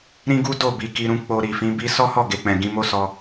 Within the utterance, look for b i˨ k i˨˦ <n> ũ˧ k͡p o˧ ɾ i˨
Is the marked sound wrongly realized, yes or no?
yes